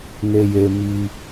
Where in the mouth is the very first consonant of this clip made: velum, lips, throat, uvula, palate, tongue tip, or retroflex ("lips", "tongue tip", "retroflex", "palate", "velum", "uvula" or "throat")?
tongue tip